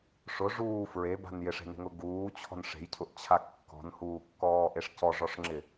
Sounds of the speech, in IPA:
ʂ ʊ ʐ uː f ɹ e b a̤ n j ɪ ʂ e̤ n e̤ ŋ ʊ ɡ uː t͡ɕʰ ɔ̤ n ʂ e̤ j cʰ ʊ ʔ t͡ɕʰ a kː ɔ̤ n h uː kː ɔː ʔ e ʂ c ɔ ʐ ɔ ʂ ŋ͡ǁ ɪ

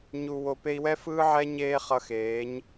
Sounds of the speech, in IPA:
ɲ u˨ w o˨ p e˧ i̯ w ɛ˦ f ɯː˦ ʕ ɛ˦ ɲ eː˦ χ ʌ˧ x eː˨˦ ɲ

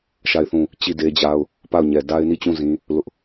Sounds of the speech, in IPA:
ʃ a˦˨ ɪ̯ θ ũ˦˨ | t͡ɕ i˦˨ d e˦ d͡ʑ a˦ ʊ̯ | p a˦˨ ʊ̯ ɲ ɛ˨ d a˦ ɪ̯ n i˦˨ t͡ɕ ũ˦˨ z ĩ˦ | l ʊ˦ ʔ

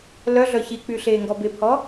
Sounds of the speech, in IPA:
l œ ɮ œ ç i k͡p y ɬ eː ŋ ɡ ɔ b e pʰ ɔ

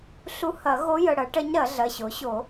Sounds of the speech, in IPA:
ɬ u˧˥ h ɐ˨˩˦ ɣ o˧˥ j ə˩˧˩ ɽ ɐ˩˥ ʈ ɐ˧˥ ɲ ɾ ɐ˨˩˦ ɮ ɐ˩˧˩ ɕ o˩˥ ɕ o˨˩˦

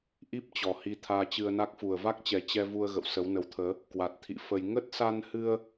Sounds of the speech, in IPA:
ʔ i˦˥ p̚ t͡ɕ ɔ˨˩ h i˧ t̪ʰ aː˧ t͡ɕ ɨ˧ ə̯ n a˦˥ k̚ f u˨˩ ə̯ v a˦˥ k̚ t͡ɕ ɛ˨˩ t͡ɕ ɛ˧ v u˧ ə̯ ɣ ə̰˧˨ w s ə˨˦ w n ə˨˦ w t̪ʰ əː˨˦ | k w a˨˩ t̚ t̪ʰ ḭ˧˨ f ə˧ j ŋ ə˦˥ t̚ s a˧ n h ɨ˧ ə̯

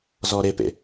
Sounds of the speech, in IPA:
z ɔ ɾ e p ḛ

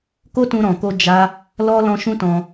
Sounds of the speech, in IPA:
k o˦ t ũ˧ ɾ ɔ̃˨ k o˧ d͡ʒ a˦ | l ɔ˦ l ɔ̃˦ ʃ ũ˦ t ɔ̃˧

